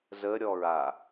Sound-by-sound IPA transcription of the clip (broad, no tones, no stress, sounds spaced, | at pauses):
z ə ɾʲ ɔ ɹ a